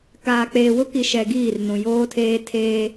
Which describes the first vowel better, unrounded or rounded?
unrounded